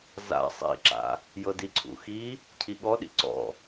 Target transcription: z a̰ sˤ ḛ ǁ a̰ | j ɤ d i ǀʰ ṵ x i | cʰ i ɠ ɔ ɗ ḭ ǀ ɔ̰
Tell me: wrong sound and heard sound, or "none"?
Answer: ḛ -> ḭ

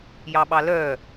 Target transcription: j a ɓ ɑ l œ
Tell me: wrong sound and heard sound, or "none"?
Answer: a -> ɑ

